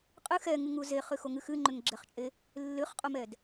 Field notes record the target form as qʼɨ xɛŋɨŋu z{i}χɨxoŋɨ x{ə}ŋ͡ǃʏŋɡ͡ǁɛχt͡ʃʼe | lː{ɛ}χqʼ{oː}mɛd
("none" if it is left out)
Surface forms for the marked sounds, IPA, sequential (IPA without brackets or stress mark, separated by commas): e, ɨ, ɨ, o